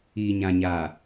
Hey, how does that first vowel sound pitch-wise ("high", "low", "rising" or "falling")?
low